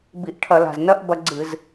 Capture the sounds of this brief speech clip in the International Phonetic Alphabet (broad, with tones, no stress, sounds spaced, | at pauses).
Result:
b i˧˩˧ ʔ ʈʰ ɐ˧˩˧ l a̤˨˩ z n ɐ˥˧ ʔ b ɐ˧ ɡ͡ǀ ɨ˧˩˧ z